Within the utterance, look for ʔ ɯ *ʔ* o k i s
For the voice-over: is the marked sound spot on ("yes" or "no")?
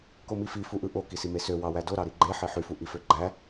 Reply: yes